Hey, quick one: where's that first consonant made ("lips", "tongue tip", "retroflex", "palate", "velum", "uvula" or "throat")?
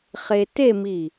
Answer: uvula